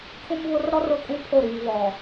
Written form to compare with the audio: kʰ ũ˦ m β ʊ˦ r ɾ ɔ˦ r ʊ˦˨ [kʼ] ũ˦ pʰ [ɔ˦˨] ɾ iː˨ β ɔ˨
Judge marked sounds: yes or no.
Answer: yes, no

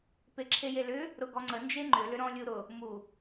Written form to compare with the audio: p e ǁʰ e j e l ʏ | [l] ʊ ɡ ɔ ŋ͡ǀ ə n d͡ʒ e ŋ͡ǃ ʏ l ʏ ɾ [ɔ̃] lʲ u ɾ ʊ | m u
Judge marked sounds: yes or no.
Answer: no, yes

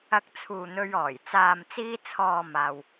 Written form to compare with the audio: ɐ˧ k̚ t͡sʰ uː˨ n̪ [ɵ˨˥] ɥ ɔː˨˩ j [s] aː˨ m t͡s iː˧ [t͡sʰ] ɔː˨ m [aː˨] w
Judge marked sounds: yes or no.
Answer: no, no, yes, yes

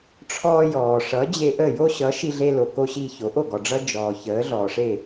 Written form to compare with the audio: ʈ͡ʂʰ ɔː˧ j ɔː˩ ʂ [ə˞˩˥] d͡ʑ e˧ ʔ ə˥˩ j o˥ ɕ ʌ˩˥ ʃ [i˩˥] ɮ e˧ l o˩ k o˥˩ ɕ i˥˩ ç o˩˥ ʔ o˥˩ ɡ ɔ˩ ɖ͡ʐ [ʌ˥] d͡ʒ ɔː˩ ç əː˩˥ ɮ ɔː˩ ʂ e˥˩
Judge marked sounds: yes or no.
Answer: no, no, yes

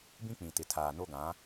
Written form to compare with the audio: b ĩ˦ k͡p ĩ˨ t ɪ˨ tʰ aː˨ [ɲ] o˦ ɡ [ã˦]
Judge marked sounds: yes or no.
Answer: no, no

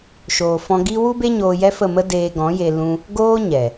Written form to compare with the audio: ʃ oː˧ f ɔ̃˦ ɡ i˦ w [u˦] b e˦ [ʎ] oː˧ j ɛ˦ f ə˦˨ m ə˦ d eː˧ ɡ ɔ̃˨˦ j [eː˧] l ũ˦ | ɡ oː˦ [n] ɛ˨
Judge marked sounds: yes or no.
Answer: yes, no, no, no

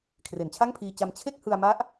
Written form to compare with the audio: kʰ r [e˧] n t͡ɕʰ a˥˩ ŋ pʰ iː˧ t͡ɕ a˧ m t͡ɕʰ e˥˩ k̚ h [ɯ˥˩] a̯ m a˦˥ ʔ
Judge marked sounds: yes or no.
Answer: no, no

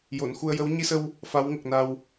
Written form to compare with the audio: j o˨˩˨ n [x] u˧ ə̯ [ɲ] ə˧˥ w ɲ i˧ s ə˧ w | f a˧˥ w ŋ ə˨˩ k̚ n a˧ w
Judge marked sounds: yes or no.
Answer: yes, no

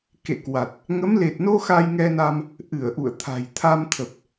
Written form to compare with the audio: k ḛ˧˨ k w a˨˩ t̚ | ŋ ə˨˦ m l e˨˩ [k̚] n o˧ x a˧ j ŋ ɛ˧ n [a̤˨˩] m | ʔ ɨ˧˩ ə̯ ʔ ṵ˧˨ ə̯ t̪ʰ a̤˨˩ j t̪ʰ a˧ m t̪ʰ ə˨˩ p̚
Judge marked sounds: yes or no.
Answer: no, no

